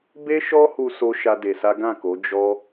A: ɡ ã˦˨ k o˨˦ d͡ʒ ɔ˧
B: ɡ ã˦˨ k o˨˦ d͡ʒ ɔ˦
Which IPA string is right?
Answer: B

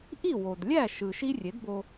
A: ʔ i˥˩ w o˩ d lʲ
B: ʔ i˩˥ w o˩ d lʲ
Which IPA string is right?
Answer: A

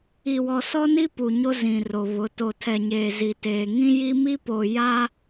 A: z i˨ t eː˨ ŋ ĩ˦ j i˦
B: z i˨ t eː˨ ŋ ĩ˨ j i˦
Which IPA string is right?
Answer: A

